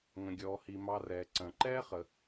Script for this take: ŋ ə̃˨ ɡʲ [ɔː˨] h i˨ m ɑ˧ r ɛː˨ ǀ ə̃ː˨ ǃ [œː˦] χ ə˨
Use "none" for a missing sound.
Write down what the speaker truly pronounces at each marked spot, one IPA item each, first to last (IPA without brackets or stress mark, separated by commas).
ɔː˨, ɛː˦